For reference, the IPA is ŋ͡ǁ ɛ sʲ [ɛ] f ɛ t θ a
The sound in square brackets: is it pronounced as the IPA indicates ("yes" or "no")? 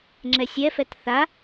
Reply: yes